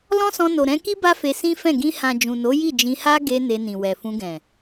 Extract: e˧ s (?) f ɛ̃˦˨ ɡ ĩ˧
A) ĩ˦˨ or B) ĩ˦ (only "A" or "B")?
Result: B